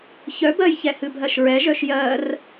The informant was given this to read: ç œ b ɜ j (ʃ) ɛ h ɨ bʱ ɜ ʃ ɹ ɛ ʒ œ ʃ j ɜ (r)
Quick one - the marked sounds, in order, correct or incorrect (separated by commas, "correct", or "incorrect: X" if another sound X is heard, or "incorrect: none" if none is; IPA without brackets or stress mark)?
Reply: incorrect: ç, correct